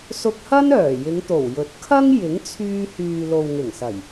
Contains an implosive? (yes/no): no